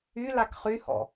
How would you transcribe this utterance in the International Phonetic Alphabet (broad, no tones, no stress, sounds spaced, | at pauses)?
y l a k χ y h ɔ̰